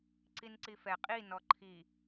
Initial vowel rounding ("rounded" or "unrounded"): unrounded